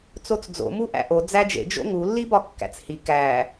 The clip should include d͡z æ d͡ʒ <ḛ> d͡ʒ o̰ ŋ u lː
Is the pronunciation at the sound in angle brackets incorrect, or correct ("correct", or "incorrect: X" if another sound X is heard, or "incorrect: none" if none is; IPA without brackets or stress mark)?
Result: correct